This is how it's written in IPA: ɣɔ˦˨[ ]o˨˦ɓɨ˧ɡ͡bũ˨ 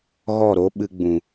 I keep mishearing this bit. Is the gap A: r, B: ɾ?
B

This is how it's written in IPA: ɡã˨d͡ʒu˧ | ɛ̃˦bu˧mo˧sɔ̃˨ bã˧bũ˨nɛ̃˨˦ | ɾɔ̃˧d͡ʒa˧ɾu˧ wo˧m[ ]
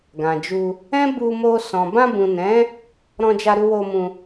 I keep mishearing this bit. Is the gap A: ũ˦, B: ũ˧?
B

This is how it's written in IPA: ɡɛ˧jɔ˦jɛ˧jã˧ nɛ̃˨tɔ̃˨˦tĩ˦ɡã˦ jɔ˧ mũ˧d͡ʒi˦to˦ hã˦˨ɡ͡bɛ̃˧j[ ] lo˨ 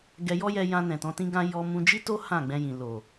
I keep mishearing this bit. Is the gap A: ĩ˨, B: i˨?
A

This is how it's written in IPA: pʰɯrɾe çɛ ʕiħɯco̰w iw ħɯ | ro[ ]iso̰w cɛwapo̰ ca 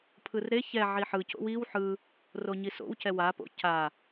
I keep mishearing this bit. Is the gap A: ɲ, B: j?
A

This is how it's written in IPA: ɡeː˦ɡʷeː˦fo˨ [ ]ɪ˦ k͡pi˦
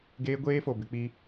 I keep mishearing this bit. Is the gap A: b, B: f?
A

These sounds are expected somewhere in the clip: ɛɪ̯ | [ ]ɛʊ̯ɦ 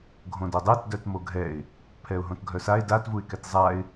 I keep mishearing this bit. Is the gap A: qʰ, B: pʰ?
B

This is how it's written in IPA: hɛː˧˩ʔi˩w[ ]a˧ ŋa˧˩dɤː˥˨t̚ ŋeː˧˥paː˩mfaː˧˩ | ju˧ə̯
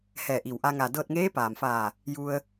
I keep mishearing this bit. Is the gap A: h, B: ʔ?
B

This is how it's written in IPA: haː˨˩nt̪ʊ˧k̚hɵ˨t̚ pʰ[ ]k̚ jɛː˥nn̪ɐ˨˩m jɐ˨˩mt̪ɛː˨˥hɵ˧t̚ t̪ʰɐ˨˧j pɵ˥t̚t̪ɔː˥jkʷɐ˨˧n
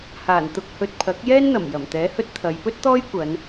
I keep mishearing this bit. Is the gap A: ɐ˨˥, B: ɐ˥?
A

